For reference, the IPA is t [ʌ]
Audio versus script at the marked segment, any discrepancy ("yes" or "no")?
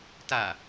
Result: yes